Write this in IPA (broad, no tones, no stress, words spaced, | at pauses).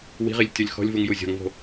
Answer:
wi̤ʁilʲ tʲɔlʲxɔ̤lʲvuŋ juzʲɔ̤ŋvo̤